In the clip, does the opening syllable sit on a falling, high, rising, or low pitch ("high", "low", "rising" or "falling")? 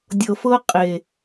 low